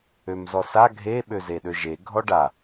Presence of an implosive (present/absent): present